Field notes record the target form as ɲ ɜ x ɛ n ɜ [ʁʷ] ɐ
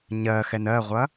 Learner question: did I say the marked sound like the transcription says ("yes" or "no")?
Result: yes